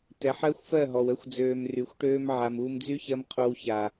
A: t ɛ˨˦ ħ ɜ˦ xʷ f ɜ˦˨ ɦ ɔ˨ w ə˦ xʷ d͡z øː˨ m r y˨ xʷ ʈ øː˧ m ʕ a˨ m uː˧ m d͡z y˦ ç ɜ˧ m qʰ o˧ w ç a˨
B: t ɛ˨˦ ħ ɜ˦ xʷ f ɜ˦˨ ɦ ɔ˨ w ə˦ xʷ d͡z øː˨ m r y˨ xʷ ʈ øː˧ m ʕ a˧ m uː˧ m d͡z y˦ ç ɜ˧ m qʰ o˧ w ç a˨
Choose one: A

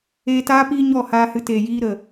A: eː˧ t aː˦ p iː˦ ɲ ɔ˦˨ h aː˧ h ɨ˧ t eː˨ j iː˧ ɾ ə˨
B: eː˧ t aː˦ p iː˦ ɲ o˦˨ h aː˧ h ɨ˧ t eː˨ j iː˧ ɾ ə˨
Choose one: A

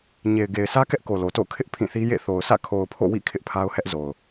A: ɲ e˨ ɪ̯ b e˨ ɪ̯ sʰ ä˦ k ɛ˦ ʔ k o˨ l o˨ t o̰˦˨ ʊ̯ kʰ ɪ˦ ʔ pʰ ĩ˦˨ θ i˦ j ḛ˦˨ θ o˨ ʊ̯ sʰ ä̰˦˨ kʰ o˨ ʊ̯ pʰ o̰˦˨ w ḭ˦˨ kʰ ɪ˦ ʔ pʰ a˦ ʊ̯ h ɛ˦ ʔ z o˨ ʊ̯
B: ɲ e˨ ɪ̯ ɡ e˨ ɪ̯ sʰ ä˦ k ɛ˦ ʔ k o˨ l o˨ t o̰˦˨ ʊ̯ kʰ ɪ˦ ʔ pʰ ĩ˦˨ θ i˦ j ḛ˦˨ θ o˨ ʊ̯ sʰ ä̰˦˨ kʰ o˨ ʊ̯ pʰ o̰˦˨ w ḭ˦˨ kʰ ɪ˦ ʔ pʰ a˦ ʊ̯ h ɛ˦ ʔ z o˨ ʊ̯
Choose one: B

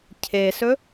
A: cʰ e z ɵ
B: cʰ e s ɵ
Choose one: B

